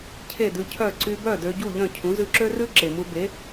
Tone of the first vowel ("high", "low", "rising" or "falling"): falling